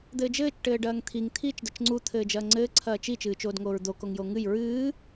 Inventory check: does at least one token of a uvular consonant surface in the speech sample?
no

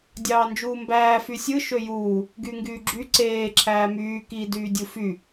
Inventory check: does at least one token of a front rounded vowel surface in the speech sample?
yes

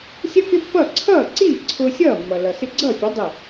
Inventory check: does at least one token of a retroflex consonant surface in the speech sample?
no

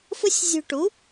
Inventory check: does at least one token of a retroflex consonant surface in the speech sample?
yes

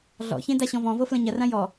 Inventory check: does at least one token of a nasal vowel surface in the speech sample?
yes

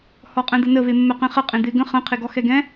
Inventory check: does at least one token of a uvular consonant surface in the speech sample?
yes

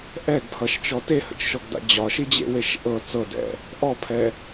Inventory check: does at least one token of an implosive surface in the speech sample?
no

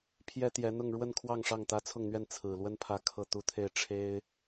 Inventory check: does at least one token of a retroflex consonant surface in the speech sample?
yes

